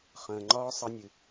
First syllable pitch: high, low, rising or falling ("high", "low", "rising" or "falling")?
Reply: low